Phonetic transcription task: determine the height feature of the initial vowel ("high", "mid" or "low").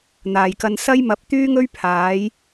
low